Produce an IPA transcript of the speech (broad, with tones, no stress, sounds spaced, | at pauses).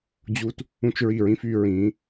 d͡ʑ u˧ t | ũ˦ t͡ʃ ɹ i˦˨ ɹ ĩ˦ f y˧ ɹ ĩ˨˦